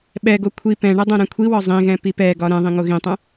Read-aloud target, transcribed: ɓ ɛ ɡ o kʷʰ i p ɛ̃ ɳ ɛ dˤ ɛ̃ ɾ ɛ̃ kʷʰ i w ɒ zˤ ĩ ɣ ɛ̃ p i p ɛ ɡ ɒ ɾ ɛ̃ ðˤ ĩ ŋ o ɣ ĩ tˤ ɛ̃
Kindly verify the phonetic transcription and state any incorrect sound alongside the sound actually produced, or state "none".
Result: none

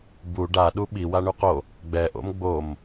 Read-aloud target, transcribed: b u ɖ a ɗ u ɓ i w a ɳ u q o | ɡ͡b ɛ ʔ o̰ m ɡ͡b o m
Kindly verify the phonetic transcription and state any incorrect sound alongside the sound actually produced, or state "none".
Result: none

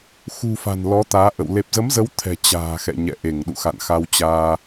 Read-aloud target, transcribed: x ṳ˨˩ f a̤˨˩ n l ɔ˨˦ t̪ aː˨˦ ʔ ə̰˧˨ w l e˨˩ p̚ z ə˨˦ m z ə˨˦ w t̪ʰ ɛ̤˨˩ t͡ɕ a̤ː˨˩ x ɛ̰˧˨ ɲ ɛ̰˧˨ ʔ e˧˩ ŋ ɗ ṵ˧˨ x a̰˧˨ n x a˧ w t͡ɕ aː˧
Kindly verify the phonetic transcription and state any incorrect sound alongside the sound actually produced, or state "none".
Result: none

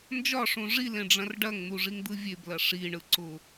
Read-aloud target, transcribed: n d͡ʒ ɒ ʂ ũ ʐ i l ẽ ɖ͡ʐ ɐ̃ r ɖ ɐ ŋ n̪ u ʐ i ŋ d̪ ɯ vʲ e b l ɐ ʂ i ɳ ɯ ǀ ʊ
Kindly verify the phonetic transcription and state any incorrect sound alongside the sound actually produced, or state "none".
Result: none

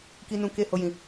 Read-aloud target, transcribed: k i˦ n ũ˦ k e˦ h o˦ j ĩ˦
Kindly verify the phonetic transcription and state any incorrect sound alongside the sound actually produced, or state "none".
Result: none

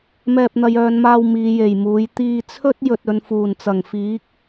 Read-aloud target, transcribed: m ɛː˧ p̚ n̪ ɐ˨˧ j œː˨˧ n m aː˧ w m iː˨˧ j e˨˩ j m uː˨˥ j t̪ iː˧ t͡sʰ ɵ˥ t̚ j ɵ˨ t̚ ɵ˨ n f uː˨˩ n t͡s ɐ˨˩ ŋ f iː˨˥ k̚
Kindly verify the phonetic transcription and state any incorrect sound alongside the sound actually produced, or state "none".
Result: none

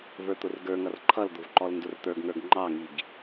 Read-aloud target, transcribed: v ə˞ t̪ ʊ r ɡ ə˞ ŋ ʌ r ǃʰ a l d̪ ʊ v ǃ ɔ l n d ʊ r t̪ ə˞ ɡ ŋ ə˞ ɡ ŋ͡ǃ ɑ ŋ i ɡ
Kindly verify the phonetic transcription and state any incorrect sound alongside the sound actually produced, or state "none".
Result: a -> ʌ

